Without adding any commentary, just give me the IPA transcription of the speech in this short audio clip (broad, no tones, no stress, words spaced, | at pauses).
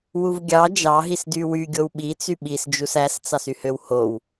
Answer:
wuvɡʲɑ d͡ʒɑ ɦisdywy ɡʲowɓit͡sy ɓisd͡ʒus æst͡sɑsyhøw how